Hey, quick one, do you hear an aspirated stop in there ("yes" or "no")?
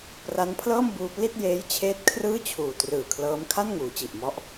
yes